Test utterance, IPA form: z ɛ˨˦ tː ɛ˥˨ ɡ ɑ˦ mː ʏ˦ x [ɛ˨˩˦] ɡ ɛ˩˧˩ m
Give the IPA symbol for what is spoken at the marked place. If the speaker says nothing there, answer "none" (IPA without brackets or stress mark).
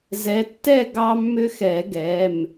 ɛ˨˩˦